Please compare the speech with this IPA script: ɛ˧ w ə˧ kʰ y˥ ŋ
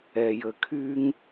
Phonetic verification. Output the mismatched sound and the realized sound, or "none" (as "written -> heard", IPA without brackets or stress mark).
w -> j